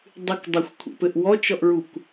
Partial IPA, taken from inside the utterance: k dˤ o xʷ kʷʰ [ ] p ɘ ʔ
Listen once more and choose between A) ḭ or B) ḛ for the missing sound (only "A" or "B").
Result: B